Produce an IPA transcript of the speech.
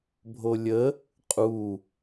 bʱ o lʲ ə | qʼ u

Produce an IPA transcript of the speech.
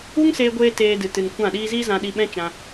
u˦ ŋ s eː˧ ɡʷ eː˧ t eː˧ d ɨ˨ t ɨ˨ n kʷ ã˦˨ ɗ iː˦ z iː˦ z ã˧ ɗ i˧ ɓ ɛ̃˦ t͡ʃ ã˧

